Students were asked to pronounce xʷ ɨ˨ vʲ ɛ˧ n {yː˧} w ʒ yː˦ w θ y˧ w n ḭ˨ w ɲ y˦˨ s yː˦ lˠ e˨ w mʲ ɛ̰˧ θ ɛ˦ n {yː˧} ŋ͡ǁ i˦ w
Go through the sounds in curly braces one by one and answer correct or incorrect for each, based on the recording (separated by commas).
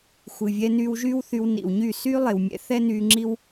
correct, correct